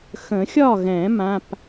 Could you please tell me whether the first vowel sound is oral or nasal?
nasal